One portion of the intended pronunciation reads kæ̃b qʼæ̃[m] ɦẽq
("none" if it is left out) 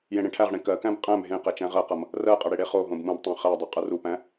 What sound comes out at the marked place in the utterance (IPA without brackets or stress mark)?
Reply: m